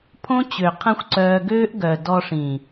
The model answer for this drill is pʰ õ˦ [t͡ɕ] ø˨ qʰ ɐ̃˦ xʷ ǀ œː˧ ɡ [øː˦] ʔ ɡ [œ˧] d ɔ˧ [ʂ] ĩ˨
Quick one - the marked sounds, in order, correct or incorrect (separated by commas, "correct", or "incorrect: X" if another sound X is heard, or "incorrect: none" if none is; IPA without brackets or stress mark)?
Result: correct, correct, incorrect: œ˨, correct